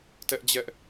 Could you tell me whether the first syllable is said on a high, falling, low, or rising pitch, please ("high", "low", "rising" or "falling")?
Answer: high